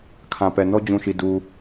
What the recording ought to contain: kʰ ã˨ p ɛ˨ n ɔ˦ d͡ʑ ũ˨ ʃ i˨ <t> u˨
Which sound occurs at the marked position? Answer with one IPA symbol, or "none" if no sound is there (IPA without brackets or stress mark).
d